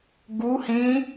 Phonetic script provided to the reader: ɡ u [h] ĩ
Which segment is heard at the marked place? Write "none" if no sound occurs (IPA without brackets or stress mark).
h